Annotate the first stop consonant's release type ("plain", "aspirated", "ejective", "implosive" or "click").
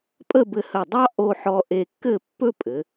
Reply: ejective